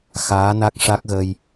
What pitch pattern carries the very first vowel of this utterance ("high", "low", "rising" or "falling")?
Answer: rising